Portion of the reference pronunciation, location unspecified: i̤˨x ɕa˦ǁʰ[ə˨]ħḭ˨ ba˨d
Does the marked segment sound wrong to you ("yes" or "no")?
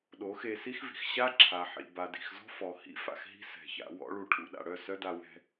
yes